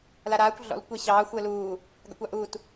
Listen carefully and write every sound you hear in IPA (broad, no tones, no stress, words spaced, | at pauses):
laɾaːkʷ ɮɔ̰l kʷeɕɑː xʷəːluː | ɡa̰kʷɑʔuːt